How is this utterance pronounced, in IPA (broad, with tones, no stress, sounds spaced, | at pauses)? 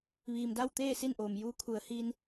ʋ iː˩ m d a˥˨ w t̪ eː˥˨ s i˥˨ n ʔ oː˩ m j uː˧˥ kʰ u˩˧ ə̯ h iː˧ n